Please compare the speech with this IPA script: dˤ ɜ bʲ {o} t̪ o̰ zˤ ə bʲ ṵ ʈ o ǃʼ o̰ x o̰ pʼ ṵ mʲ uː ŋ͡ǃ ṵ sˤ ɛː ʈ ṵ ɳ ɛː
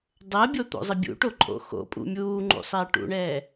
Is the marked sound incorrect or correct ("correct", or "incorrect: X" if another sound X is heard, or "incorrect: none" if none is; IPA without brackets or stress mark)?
correct